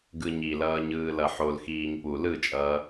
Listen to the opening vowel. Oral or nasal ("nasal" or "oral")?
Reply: oral